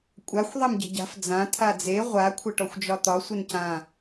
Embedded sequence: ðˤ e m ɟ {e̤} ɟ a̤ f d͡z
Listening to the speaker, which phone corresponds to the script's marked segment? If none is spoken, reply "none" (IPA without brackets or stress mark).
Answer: e̤